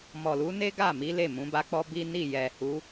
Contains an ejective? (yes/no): no